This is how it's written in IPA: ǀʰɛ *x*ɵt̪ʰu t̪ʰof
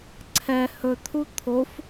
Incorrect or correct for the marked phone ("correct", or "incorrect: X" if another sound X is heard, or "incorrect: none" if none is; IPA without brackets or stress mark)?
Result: incorrect: h